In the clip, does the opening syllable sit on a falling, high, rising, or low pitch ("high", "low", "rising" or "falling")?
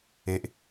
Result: low